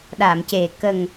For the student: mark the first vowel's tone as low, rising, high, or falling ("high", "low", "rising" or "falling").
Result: low